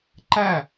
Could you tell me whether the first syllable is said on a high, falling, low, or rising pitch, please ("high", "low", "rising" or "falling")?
falling